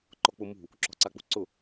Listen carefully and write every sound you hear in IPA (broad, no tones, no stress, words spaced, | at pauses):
ǃɔk͡pʊ mṳ | ǁɔ̤ǀak͡pṳǀʊ